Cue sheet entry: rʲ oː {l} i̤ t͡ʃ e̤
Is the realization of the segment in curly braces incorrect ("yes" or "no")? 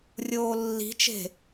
yes